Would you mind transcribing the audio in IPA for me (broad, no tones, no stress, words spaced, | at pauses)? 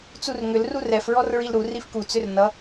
t͡surŋʏl rurɛf ɹɔrɹilɾu rifku t͡sʏrnʌ